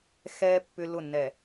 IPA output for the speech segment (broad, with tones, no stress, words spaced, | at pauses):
xɛ˦ pːʏ˦lʊ˦˨nːɛ˨